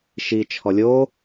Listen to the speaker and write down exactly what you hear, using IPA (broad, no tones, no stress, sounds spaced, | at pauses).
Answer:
ʃ i t͡ʃʰ ɔ lʲ o